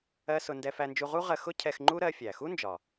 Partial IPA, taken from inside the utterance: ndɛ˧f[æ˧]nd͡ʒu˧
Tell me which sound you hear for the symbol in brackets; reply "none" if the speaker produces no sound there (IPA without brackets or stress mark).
æ˧